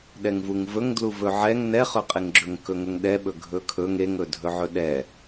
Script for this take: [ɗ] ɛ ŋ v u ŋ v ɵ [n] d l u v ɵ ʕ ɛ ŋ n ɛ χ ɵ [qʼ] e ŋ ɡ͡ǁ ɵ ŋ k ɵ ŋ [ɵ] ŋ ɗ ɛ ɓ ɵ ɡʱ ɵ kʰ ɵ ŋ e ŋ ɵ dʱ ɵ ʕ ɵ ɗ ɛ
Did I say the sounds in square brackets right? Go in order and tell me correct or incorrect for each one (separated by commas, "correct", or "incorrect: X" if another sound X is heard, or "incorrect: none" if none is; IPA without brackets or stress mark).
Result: correct, incorrect: ŋ, correct, correct